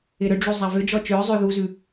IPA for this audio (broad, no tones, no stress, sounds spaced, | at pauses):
ɪ ɾ ʏ ɖ͡ʐ u zˤ a v ʏ d͡ʒ ɔ t͡ʃ ʏː zˤ ʏː ð u z ʉ